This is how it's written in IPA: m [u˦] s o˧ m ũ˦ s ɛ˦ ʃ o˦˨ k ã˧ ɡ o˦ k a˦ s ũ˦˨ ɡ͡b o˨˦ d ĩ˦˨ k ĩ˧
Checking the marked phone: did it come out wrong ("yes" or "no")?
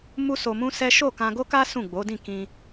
no